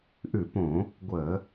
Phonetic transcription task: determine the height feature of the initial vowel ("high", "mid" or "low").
high